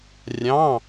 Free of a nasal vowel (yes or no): no